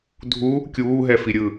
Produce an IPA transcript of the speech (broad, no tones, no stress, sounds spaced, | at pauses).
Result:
dʱ u | kʲ uː ɦ ɛ f i ɾʲ ɯ